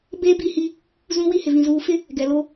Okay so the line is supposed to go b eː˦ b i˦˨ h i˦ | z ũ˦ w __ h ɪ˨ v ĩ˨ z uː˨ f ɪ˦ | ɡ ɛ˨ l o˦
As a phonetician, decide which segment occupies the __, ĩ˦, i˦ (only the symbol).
i˦